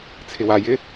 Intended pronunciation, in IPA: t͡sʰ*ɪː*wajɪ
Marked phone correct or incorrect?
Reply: incorrect